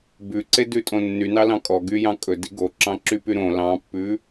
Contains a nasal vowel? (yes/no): yes